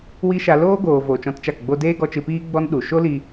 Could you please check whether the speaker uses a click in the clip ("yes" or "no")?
no